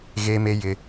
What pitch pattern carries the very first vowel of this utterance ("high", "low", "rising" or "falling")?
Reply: high